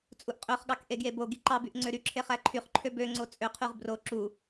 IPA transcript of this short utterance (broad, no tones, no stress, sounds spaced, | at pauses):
t͡sʼ u ʔ qʼ ø χ ɠ ɑ k ʔ e ɡ j e b o ɡ i ǃ ɑ b y ʔ ŋ͡ǀ ø ɾ y ǁʰ e χ æ ǃʰ y χ ǃʰ ø b ø ŋ͡ǀ o t͡sʼ ø qʰ y ʁ b r o ǁ u